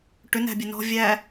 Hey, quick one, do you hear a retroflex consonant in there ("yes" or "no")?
yes